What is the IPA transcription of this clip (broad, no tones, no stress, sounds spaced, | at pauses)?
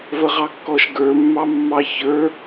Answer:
v ə ʁ ɑ kː ɔ ʃ ɡ ə˞ mː ɑ mː ɑ ç ə˞